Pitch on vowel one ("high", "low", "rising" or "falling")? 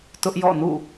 high